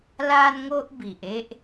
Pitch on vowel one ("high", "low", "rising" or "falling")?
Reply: high